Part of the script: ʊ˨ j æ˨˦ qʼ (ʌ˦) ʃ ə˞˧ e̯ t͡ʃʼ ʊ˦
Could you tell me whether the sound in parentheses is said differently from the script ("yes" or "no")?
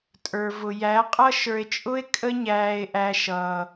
no